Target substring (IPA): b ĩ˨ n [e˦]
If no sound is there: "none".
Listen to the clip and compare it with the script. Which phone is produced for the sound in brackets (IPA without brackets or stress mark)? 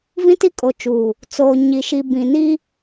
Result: i˦